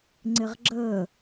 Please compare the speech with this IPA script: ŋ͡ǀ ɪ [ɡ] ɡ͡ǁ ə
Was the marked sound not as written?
yes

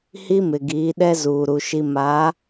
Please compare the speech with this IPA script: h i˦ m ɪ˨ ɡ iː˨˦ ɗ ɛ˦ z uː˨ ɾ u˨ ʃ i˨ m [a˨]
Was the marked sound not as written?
yes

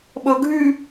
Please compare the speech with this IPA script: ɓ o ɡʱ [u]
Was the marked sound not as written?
yes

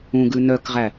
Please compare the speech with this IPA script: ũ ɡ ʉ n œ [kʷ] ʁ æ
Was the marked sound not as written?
yes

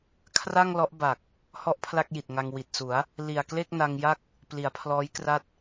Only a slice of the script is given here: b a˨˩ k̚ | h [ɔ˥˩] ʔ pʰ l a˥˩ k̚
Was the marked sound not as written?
no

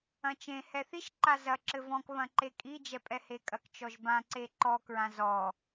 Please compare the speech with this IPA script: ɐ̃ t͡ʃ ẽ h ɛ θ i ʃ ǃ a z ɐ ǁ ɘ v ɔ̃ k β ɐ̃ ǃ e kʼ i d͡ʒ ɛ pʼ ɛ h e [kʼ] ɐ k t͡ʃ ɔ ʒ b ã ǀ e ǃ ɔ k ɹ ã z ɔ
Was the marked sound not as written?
no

